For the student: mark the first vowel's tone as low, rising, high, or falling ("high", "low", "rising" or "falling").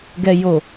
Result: low